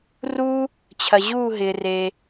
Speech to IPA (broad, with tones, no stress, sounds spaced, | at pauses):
r u˥ | t͡ɕʰ ɐ˧ ʑ uː˥˧ ɦ ɪː˧ r eː˧